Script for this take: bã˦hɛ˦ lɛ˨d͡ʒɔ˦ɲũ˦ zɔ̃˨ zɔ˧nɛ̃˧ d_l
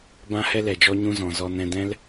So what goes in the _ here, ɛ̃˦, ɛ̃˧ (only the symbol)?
ɛ̃˦